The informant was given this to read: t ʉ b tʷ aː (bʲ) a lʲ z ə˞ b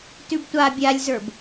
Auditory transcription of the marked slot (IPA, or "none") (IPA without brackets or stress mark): bʲ